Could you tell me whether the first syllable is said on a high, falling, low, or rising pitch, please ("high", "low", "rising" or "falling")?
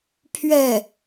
falling